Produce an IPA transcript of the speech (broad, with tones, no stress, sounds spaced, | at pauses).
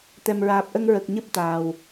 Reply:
t̪ ɛ˨˩ m ɹ aː˨˩ p̚ ʔ ə˧ ŋ ɹ ə˨˩ k̚ ɲ ɨ˦˥ p̚ t̪ aː˨˩ w